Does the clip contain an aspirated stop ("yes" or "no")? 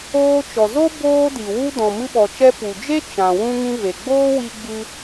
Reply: no